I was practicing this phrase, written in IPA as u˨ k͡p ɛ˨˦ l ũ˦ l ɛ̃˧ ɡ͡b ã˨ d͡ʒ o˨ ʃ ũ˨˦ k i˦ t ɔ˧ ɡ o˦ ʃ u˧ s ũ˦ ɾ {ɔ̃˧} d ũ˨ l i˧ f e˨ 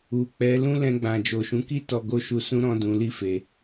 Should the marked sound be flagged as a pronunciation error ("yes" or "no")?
no